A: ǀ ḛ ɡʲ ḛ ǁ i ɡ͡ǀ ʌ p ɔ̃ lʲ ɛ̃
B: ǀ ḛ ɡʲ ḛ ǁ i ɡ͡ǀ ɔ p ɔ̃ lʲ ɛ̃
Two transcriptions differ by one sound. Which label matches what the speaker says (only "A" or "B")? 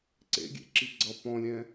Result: A